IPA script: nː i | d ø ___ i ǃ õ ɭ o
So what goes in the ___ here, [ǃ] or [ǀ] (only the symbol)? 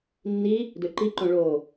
ǃ